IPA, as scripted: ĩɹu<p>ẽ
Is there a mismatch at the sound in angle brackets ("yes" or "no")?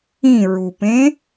no